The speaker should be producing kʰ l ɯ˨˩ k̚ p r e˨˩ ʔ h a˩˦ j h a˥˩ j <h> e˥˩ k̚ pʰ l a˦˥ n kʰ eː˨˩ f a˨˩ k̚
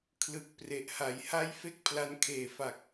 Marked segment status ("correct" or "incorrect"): incorrect